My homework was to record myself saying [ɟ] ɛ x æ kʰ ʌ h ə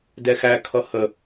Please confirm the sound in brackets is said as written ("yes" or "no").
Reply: no